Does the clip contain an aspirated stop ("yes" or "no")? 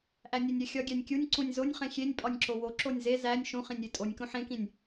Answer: no